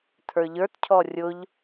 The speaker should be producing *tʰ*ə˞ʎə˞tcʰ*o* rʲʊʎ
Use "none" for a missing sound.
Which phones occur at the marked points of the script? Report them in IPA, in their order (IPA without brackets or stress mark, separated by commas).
tʰ, ɔ